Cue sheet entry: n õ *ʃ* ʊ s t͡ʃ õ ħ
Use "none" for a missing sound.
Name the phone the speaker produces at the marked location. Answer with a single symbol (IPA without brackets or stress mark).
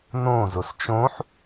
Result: z